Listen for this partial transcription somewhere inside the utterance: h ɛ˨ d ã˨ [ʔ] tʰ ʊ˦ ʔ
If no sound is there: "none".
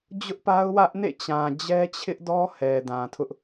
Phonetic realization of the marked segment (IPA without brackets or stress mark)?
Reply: none